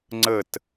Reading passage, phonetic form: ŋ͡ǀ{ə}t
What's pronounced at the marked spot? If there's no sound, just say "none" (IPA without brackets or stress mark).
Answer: ə